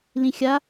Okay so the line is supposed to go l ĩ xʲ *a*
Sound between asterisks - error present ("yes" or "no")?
no